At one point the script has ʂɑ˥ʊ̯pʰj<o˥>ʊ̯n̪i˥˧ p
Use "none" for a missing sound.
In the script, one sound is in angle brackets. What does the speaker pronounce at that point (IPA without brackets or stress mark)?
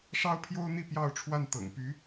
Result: o˥